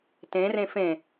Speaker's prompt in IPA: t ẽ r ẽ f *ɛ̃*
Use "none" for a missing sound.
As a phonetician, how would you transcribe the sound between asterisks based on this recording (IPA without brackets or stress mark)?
ẽ